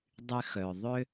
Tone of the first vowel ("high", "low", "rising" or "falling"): high